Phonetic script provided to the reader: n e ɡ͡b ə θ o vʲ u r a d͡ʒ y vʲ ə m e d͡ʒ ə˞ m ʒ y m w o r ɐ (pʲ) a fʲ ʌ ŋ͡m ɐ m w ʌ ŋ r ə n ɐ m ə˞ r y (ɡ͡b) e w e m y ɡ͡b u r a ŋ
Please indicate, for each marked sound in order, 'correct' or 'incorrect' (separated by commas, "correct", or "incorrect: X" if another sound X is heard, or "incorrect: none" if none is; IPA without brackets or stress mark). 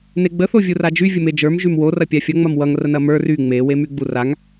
correct, incorrect: ŋ͡m